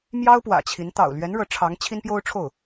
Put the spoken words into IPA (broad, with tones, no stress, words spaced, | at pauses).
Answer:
mjɑ˥ʊ̯pwä̰˨˩ t͡ɕʰi˧˥n t̪ɑ̰˨˩ʊ̯lɥɛ˧˥n ɻɤ˧˥ʈ͡ʂʰɑ˧˥ŋ t͡ɕʰi˥npjo˥ʊ̯ʈ͡ʂʰo˥˩ʊ̯